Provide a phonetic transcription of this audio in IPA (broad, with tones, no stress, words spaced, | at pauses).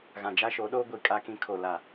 ɣã˨d͡ʒa˦ʃo˨˦ɗoː˦ ɡʷi˨ kʼa˦kĩ˦ kʰo˨la˨